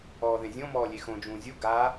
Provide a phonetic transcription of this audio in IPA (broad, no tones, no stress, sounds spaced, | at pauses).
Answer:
ɔː ð ẽ zʲ õ m ɔː lʲ e x õ d͡ʒ ũː zʲ u ɡ a